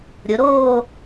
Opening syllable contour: rising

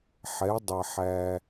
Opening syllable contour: rising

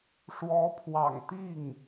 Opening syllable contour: rising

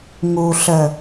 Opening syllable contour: low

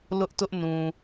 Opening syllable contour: high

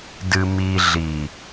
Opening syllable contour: low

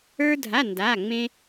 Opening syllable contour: high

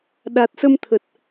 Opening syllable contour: low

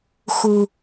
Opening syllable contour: low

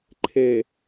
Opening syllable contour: low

